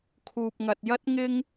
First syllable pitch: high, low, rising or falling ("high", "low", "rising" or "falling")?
low